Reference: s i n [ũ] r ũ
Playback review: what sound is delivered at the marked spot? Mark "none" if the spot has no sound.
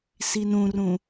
ũ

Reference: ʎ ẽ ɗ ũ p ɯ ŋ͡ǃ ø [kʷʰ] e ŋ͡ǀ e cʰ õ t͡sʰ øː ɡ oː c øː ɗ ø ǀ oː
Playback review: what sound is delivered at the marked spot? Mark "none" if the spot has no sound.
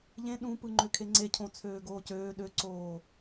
kʰ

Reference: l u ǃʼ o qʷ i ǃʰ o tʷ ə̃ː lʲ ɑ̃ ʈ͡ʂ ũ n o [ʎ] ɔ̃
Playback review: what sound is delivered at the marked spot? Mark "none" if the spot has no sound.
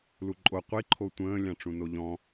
ʎ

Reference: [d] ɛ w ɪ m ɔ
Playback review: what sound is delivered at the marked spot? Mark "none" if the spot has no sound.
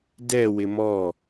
d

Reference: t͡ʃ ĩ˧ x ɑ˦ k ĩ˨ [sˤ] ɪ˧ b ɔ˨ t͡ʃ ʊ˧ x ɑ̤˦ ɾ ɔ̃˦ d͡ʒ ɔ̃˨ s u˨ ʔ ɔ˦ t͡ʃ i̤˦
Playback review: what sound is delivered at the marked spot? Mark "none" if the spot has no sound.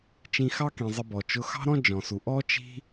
zˤ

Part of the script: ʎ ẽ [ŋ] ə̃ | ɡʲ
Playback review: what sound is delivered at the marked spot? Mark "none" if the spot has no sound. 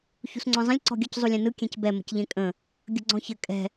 kʼ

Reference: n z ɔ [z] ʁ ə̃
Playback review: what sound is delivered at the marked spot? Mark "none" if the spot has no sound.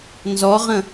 none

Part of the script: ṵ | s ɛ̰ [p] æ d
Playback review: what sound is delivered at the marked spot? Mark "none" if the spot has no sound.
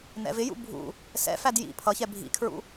f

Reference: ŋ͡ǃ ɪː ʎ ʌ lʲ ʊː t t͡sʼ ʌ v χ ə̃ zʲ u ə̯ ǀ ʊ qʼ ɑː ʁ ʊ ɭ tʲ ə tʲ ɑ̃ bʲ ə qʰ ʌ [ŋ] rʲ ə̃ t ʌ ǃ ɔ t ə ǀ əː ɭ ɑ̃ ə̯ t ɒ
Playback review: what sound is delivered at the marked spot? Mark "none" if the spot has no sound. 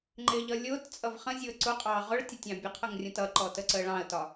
ŋ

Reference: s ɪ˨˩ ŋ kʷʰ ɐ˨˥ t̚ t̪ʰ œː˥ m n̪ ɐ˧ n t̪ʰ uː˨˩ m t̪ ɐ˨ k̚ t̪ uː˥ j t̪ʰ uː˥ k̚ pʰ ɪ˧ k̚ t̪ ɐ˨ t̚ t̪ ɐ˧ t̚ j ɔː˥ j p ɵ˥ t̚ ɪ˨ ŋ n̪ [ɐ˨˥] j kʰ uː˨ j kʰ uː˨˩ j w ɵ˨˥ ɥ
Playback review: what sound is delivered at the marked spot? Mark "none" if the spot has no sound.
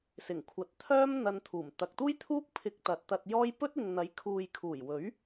ɐ˨˥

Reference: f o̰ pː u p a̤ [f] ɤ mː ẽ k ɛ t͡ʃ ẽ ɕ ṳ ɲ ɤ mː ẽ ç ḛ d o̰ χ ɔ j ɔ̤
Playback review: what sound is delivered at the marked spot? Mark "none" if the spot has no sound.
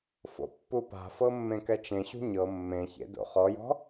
f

